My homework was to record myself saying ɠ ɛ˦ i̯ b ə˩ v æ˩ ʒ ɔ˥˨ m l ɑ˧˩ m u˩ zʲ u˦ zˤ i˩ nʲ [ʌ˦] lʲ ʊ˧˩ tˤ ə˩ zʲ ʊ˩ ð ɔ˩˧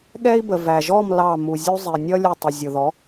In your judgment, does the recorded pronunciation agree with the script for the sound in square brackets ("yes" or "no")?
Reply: yes